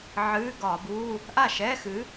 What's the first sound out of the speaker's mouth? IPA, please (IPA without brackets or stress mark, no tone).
ʕ